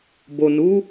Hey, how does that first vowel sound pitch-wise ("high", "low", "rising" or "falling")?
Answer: low